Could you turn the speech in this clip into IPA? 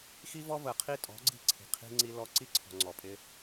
xi˦vɔ˦və˨ qʰi˦tʼɔ̤˨˦ɡ͡ǀi̤˦˨ǀʰi̤˨ qʰi̤˦ŋ͡ǀi˦lɔ˦ ǀi˦ǀʰɔ̤˨ ŋ͡ǀɔ˨pʼɪ˦

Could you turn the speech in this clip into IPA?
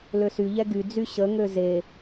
løsyʎɛ ɡyd͡zy ɕəŋø ze

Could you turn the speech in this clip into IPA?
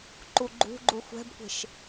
ǃuɡ͡ǃṳɡ͡ǃu xʷɛ̤bkʷe̤ʃ

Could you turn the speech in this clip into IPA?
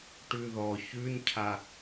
ʈʉðɔ çʉncʰa

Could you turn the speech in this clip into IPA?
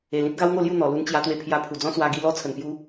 e˨˩lĩ˦t̚ɡa˦w ŋo˥˧lju˥˧n̪ɔ˨˩ lu˧nt͡ɕja˧t̪we˧pʰja˧ pʰu˨˩d͡zɔ̃˦swa˧ ɡi˧lɔ˦ t͡sʰə˨˩npju˧

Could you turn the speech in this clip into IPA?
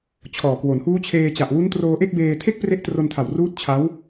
t͡ɕʰɔː˨˩kwo˩˦n huː˦˥t͡ɕʰeː˧t͡ɕa˨˩ʔ wu˦˥n troː˧ʔe˥˩k̚beː˧ tʰe˥˩k̚pre˦˥ʔtro˧ntʰa˨˩w ruː˦˥t̚t͡ɕʰa˦˥w

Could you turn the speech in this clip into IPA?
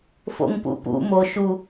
fo̰ŋpṵpṵ mo ʃu

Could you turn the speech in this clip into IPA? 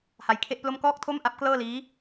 ha˧jkʰe˥˩ʔplo˥˩m kɔː˥˩k̚tʰo˥˩mʔa˦˥p̚ klɤː˥˩liː˦˥

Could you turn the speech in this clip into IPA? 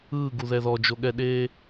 ɯːɡuðɛ ðɔd͡ʒoɠɛɗeː

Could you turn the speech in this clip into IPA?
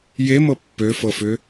jemɤ pːøfɤfʏ

